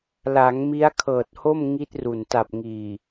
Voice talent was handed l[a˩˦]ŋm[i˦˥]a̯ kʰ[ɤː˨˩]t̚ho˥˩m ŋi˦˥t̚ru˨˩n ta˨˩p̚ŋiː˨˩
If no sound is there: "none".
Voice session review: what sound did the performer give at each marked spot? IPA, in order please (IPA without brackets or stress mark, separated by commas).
a˩˦, i˦˥, ɤː˨˩